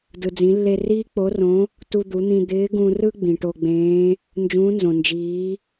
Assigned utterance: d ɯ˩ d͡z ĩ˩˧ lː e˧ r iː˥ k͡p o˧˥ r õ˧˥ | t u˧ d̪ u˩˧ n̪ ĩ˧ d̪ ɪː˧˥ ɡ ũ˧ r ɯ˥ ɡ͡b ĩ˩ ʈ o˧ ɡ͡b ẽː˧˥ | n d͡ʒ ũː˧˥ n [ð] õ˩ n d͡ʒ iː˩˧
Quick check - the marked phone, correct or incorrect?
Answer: incorrect: z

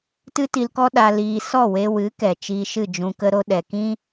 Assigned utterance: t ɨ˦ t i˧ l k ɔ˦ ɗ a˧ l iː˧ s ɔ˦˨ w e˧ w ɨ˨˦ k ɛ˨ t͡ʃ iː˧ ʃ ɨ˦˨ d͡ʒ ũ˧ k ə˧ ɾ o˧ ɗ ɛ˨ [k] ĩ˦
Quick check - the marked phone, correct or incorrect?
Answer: correct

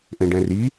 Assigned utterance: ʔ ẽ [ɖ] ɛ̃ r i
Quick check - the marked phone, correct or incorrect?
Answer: correct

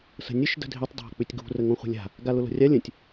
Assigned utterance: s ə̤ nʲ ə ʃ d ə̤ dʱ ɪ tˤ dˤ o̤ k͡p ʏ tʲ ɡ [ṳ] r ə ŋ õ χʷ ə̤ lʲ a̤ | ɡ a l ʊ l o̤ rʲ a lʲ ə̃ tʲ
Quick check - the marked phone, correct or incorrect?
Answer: correct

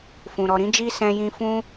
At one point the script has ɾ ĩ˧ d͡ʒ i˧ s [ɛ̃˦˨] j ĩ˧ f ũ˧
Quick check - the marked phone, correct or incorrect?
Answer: incorrect: ɛ̃˧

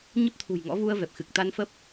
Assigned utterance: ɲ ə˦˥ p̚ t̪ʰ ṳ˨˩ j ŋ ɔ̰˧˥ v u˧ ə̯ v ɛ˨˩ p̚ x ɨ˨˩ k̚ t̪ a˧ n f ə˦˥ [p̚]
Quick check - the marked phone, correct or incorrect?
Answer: correct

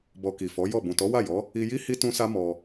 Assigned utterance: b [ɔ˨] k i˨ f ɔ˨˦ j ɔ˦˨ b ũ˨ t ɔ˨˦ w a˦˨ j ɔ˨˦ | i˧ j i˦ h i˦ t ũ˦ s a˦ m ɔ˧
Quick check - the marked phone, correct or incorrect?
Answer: incorrect: ɔ˧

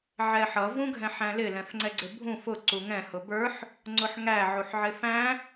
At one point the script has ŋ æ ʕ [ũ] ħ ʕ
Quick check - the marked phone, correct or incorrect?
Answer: incorrect: u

